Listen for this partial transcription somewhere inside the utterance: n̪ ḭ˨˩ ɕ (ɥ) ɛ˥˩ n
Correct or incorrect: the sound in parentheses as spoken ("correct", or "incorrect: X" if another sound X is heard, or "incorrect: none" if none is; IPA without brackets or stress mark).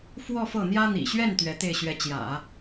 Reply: correct